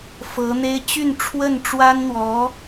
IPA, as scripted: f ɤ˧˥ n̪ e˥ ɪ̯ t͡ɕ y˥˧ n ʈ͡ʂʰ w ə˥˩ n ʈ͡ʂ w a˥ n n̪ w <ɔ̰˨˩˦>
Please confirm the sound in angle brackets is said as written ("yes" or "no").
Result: no